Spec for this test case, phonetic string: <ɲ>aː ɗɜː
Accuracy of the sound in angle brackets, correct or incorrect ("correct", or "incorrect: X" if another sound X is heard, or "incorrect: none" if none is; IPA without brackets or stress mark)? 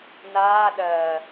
incorrect: n